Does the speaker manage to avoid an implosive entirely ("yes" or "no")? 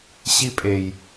yes